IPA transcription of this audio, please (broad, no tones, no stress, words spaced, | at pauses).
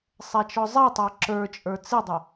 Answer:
sˤɛt͡ʃɔzˤɛtˤə˞ ǁə˞t͡ʃʼə˞ t͡sɪdˤə